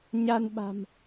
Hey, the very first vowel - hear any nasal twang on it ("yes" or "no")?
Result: no